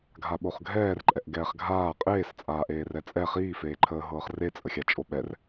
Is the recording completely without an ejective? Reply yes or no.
no